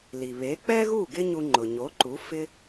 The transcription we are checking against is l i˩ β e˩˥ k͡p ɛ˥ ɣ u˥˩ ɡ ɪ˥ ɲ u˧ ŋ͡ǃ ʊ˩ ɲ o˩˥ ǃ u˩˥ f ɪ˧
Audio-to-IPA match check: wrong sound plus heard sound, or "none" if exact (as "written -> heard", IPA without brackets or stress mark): none